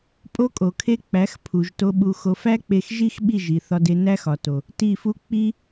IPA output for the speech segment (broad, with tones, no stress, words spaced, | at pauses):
pʼo˦kʼo˨kʰe˦ k͡pæ˨˦xpʰu˨ʒ to˧ɓu˧xo˧ fæ˦k͡pe˧xʒi˦x ɓi˦˨ʒi˨θɒ˧de˧ næ˦xɒ˨to˨ | ti˦˨fu˦ k͡pi˦